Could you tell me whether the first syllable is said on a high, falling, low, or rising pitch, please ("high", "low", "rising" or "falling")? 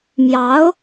rising